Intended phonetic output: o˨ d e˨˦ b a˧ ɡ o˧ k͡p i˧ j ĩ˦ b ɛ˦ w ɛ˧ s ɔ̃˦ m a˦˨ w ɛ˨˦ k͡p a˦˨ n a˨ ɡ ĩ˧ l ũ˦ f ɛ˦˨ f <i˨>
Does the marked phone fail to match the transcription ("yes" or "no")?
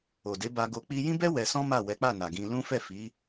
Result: yes